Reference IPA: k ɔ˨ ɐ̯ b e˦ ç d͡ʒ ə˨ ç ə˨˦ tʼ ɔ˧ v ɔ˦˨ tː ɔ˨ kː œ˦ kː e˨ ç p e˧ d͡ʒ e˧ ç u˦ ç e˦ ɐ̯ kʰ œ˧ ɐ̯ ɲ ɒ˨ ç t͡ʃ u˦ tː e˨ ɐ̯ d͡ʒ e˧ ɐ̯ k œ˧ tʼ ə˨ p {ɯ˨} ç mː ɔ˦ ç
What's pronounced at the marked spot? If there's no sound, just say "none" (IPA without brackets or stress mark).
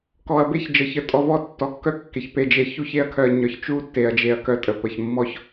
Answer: ə˨